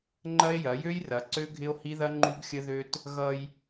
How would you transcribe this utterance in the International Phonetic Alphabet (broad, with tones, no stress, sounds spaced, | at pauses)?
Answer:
ŋ͡ǃ ɐ˦ e̯ j ɐ˨˦ j ø˦ j r ɐ˨˦ ǀ ø˦ ɡʱ ɪ˦ o̯ h i˦ ð ɐ˦ ŋ͡ǃ u˦ ɡ xʲ ə˦ ð ø˦ t | ɣ ʌ˦ j